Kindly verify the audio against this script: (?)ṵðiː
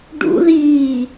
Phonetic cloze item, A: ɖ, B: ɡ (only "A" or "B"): A